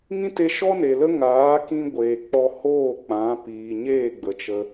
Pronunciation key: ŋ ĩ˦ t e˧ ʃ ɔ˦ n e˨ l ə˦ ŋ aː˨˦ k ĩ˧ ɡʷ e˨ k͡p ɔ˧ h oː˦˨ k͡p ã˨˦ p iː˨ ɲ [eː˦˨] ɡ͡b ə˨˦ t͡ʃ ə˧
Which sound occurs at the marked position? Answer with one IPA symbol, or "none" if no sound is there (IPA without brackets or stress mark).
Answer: eː˦˨